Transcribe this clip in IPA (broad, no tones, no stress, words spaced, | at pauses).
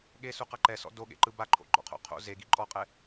ɠesuqa ǃɛsɔ̰ doɠḛǃɯ baǃʰo̰ɡ͡ǃɔ̰qʰo̰ qʰo̰ zeɡi ǃʼɔqʼɛ